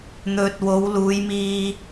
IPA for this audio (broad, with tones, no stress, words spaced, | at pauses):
n̪ɵ˨t̚wo˨˧wluː˨˧j miː˧